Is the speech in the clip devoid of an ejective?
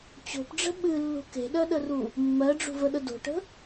yes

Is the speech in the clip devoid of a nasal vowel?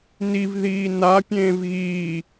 no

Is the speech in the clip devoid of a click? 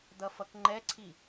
no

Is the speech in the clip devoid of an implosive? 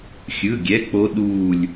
no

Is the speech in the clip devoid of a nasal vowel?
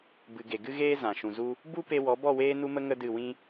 no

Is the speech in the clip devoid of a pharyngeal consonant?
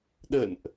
yes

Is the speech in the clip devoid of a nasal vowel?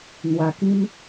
no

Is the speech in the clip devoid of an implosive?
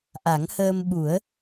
no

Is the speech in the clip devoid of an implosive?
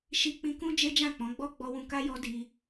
yes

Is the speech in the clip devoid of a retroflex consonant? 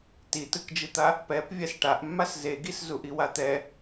no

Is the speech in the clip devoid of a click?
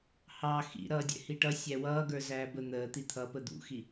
yes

